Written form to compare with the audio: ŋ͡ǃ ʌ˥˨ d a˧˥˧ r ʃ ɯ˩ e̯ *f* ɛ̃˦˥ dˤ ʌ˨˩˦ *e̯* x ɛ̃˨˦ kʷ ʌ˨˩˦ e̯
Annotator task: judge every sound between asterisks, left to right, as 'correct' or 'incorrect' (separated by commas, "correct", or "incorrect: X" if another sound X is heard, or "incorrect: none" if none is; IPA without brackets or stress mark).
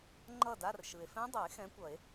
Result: correct, correct